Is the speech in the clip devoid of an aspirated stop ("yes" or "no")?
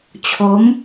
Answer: no